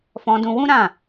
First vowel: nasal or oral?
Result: nasal